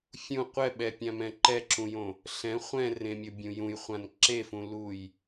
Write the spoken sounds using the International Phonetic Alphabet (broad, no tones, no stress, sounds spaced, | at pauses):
fʲ ũ qʷ ɛ ɓ ɛ pʲ ã m ɛ̃ ǃ ɛ ǁ ũ j õ | ɬ ɛ̃ χʷ ɛ̃ r ẽ mʲ o bʲ ũ j ũ j χʷ ã n ǁ e f ũ l u j